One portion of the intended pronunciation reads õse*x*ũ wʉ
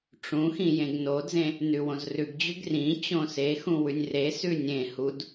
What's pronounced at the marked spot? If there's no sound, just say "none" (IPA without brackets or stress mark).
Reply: x